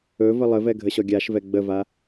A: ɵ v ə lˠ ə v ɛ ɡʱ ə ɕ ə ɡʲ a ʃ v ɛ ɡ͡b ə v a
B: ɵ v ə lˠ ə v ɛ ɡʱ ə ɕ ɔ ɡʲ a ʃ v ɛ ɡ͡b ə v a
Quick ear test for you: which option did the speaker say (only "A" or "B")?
B